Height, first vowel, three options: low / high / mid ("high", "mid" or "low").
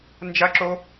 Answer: low